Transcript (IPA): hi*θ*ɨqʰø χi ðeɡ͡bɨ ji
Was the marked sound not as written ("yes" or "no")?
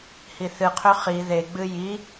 no